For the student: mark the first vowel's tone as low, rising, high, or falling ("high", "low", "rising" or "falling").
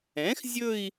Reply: rising